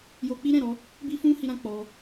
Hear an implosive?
no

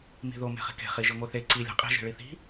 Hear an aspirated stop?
no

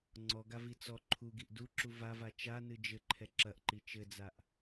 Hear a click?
yes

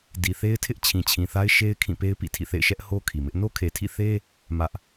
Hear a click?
no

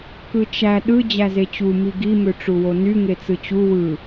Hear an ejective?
no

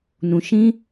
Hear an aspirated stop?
no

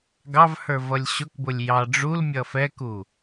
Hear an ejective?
no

